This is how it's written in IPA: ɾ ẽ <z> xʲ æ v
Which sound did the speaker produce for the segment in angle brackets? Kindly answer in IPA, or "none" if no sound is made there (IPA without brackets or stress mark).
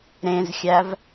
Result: z